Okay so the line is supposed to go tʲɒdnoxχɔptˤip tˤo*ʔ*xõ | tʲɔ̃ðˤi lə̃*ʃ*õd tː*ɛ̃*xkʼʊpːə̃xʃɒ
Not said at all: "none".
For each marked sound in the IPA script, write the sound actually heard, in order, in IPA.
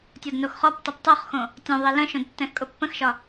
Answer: χ, ʃ, ɛ̃

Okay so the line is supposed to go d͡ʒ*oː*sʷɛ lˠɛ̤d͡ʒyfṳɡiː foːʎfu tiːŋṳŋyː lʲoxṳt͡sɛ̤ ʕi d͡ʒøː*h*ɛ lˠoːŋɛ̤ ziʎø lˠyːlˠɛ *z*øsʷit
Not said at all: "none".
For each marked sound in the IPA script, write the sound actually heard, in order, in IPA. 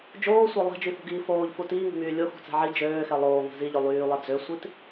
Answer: oː, x, d͡z

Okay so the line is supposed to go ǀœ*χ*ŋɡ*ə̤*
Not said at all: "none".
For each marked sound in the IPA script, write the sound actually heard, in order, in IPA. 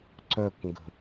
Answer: k, ə̤

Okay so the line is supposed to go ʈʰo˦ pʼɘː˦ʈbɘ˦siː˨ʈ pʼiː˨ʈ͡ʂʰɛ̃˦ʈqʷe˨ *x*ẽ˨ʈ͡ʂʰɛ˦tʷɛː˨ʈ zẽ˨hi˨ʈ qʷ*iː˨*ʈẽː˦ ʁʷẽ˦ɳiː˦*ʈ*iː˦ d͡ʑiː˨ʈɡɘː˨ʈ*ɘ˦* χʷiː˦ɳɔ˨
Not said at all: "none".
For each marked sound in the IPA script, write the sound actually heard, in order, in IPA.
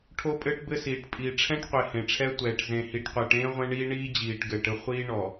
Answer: h, iː˨, ɳ, ɘ˦

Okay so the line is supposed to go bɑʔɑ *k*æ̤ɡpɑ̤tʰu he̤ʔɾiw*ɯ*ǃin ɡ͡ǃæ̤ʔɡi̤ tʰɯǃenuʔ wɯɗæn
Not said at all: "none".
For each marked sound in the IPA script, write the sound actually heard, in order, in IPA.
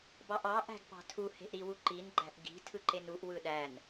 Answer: ʔ, u

